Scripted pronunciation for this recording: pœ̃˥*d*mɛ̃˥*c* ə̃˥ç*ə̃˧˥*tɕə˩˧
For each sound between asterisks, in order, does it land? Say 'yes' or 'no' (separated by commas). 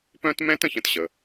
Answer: no, no, yes